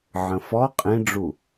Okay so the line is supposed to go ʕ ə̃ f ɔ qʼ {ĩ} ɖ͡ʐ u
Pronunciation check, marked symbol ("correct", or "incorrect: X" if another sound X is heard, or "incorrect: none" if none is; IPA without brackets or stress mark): correct